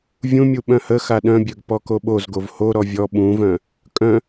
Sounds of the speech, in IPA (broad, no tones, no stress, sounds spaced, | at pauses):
vʲ ũ mʲ u ɓ œ̃ h ə x a ɗ œ̃ bʲ œ ɡ p ɔ k o ɓ o z ɡ o v h o ɾ ɔ vʲ ɔ ɓ ũ v œ̃ | kʼ œ̃